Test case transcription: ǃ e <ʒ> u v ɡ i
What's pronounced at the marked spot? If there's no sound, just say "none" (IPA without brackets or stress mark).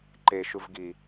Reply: ʃ